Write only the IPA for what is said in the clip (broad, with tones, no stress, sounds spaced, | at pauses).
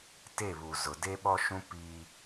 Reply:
t e˦˨ β u˨ z ʊ˨ d e˦ ɓ ɔ˦ ʃ ũ˦ p i˦